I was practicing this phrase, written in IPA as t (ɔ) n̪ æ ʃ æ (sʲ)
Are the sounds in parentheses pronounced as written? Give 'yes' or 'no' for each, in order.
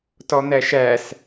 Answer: yes, no

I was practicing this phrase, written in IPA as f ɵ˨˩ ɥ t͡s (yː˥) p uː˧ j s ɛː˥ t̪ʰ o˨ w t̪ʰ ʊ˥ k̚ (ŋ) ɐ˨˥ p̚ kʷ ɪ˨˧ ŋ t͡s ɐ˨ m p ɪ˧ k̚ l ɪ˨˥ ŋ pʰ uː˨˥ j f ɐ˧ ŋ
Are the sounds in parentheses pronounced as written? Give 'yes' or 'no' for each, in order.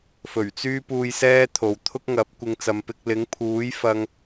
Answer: yes, yes

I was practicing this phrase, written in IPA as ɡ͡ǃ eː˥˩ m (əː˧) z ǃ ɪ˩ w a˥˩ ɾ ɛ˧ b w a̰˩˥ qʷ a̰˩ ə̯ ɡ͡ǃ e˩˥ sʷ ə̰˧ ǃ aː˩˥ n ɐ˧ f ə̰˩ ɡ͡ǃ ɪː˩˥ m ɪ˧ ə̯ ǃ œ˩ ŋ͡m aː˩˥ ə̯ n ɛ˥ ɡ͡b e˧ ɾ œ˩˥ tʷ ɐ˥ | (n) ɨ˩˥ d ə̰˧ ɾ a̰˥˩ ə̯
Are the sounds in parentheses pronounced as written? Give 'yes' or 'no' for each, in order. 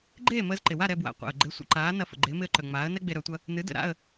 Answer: yes, yes

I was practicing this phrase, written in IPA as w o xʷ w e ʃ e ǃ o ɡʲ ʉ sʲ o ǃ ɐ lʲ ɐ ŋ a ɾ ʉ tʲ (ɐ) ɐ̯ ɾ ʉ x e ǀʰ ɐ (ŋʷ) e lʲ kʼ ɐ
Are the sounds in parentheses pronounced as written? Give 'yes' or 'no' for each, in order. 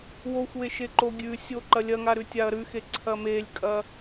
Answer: no, no

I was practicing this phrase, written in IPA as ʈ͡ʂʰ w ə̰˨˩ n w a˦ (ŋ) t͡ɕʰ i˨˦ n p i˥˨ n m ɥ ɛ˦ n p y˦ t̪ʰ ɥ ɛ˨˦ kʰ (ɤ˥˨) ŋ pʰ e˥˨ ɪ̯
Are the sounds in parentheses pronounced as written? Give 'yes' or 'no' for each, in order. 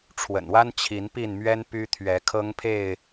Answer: no, no

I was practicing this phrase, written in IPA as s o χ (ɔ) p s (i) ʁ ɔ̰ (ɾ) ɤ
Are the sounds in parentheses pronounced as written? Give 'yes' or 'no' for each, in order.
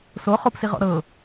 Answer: no, yes, yes

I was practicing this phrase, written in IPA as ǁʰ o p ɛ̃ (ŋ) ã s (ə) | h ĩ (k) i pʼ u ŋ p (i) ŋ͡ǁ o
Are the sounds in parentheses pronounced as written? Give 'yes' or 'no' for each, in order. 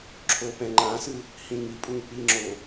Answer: no, no, no, yes

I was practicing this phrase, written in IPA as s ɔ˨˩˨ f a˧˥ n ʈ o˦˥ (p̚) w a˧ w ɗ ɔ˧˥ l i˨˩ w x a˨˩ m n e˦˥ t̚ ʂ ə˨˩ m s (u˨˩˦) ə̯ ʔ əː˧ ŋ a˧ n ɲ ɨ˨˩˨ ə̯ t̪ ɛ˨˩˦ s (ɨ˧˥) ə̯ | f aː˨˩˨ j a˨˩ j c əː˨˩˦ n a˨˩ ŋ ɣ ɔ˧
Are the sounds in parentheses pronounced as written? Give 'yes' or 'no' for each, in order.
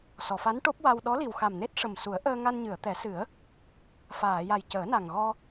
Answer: yes, yes, no

